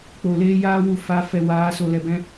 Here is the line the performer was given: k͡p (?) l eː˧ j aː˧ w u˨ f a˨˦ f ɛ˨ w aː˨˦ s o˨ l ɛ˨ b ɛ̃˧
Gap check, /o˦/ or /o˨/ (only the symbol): o˨